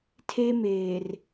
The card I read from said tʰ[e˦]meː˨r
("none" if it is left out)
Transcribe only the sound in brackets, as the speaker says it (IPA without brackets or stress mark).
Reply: e˦